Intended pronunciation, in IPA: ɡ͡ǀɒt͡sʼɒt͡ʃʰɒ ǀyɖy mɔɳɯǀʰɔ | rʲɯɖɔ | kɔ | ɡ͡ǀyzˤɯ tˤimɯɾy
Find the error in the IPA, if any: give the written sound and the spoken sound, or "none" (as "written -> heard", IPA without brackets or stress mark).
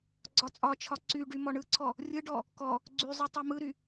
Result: none